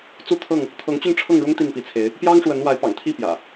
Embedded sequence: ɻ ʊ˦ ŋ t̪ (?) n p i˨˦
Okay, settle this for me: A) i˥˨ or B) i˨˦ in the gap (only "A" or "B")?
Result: A